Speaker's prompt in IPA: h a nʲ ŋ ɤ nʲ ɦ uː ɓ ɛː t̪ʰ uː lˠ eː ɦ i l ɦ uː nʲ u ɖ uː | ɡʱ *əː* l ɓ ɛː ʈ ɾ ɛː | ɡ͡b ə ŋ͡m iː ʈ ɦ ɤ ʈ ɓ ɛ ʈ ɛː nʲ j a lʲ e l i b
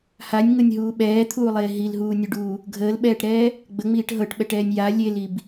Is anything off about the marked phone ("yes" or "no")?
no